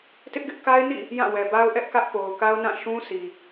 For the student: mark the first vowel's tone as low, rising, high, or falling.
high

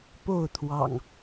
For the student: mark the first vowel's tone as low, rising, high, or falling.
falling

